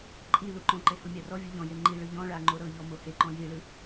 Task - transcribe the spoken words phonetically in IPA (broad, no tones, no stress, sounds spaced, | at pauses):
ǃʼ i l u ǃ ɔ̃ ǃ e h u mʲ a r ɔ vʲ u ʎ ɔ̃ j e ŋ͡ǃ i ɭ ɯ ʎ ɔ̃ ɭ a ŋ͡ǃ o ɾ ɤ ʎ ɔ m o h e ǃ ɔ̃ j i ɭ ɯ